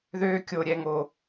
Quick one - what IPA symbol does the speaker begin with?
ð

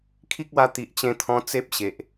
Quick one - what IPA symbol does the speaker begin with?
kʰ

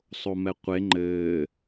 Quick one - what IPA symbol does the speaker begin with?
sˤ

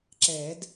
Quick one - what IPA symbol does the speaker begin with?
ǁ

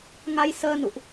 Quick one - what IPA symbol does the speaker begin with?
ŋ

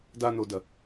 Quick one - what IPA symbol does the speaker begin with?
d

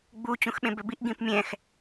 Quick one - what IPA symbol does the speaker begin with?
ɡ͡b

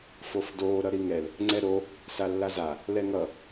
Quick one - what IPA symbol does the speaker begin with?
f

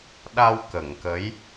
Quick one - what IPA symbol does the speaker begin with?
ɗ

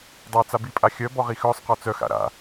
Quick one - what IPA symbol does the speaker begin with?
dˤ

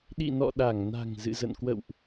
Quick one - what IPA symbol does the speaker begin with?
ɗ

